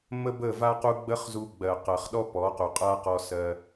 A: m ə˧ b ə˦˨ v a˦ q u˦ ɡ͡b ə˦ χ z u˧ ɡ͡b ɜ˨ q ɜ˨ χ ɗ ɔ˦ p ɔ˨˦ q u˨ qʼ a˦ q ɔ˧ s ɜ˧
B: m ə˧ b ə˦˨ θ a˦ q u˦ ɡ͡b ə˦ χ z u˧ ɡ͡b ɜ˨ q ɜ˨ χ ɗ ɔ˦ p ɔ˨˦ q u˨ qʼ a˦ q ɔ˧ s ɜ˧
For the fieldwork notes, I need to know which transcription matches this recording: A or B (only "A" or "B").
A